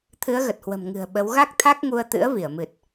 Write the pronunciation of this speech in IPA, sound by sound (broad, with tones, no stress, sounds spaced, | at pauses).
t̪ʰ ɨ˨˦ ə̯ ɣ ə˨˩ t̚ h w ə̤˨˩ m ŋ ɨ̤˨˩ ə̯ ɓ ə˨˦ w ɣ a˦˥ k̚ t̪ʰ a˦˥ k̚ ŋ u˧ ə̯ t̪ ɨ̰˧˥ ə̯ v i˧˩ ə̯ m ɨ˨˩ t̚